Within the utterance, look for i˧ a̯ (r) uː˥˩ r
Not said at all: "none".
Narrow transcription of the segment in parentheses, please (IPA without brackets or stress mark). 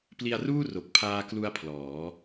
r